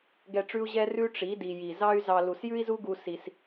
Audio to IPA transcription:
ɡ ɛ˧ ʈ͡ʂ ʉ˦ u̯ ʑ ɛ˦ r ʉ˦ ʈ͡ʂ i˨˦ d i˨ j i˨ z ɑ˦ y̯ z ɑ˧ l u˨ s j ʉ˦ i̯ z u˦ ɡ u˧ s i˧ s

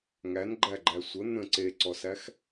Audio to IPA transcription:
ŋ æ n ɡ͡ǃ æ ɡ͡ǃ æ sʷ ə n̪ ə̃ ǀ e ǀ ɔ s æ x

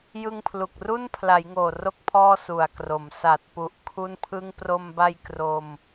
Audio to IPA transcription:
j ɯ˧ ŋ pʰ l u˨˩ k̚ r u˥˩ n pʰ l a˩˦ j ŋ oː˨˩ r o˥˩ k̚ pʰ ɔː˥˩ s u˨˩ a̯ k r o˩˦ m s a˨˩ t̚ p u˨˩ ʔ kʰ u˥˩ n pʰ ɯ˥˩ ŋ p r o˧ m b a˧ j k r o˧ m

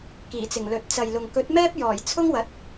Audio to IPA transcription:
k iː˨˩ t͡s ɪ˨˩ ŋ l ɵ˨ t̚ t͡s ɐ˨ j l ʊ˨ ŋ k ɵ˨˥ t̚ m ɛː˥ p̚ j ɔː˨˩ j t͡sʰ ʊ˥ ŋ w ɐ˨˥ t̚

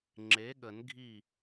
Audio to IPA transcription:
ŋ͡ǁ e˩˥ ɠ ə˨˩˦ n ɡʱ i˥˩

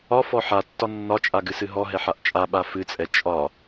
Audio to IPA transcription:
ɒ f ɔ ħ a tː ɒ nː ɒ t͡ʃʼ a ɡ ɨ s ɨ ɦ ɔ ɦ ɛ ħ a ʔ t͡ʃʼ a ɓ a f ɨ t͡sʼ ɛ t͡ʃʼ ɒ

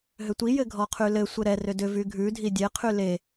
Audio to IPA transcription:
ɦ ʏ tʷ i j ɘ ɡʱ ɔ qʰ y l ɘ sʷ ɘ ɾ ɛ r ʏ d ʏ v y ɡʱ ʉ dʱ i dʲ e qʰ y l e

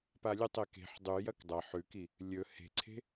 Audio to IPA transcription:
p a lʲ ʉ tˤ e k e̤ ħ dˤ ʉ j ɐ k dˤ ɐ ħ ʉ k i | lʲ ɵ h e̤ ǀʰ e̤

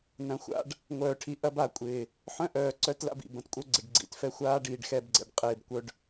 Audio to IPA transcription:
n ɐ̃˨ xʷ a̰˦ ɖ | ŋʷ œː˨ ʈʰ i˨ ʔ ɐ˦ b a˨ kʷʼ ɪː˨ | ħ œ̃˦ ʔ œː˨ ǀ œ˦ t l a̰˦ b ḭ˨ b ɐ̃˨ t kʷʼ œ˦ ɡ͡ǀ ɪ˨ ɖ ɡ͡ǀ ḭ˨˦ t f ɛ˦ xʷ aː˦ ɖ iː˨ ɖ x ɛ˦˨ b ɡ͡ǀ ɛ̰˨ ɖ qʼ ɪː˦˨ b kʷ œ˦ ɖ

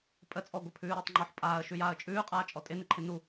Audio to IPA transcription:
pʼ ə t͡sʼ ɔ ɡʷ ə pʰ ʉː ɾ ɪː tˤ ŋ͡ǃ ɔ ħ pʼ aː ə̯ ʃ ʉ j aː ə̯ t͡ʃʼ ʉː qʼ aː t͡ʃʼ ɔ tʼ ɪ n ɪ ǃʰ ɪ n u

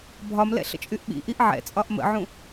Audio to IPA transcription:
bʱ ɒ m l ɛ̰ ɬ ə̰ t͡ʃʼ y ʔ ɓ ḭ ʔ i ʔ ʕ ɛ̰ t͡sʼ ɒ ʔ m ə̰ ʕ ũ

